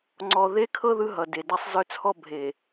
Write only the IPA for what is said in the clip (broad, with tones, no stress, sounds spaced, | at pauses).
ŋ͡ǀ ɔ˨ ð e˦ kʰ ɤ˦ ð ɯ˦ ɦ ʌ˨ d e˨ d a˦ sˤ z œ˦ t͡sʰ ɔ˦ bʱ e˨